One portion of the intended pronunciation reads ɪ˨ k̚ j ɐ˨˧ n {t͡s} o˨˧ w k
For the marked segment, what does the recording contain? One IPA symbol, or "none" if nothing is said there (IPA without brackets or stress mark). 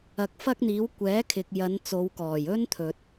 t͡s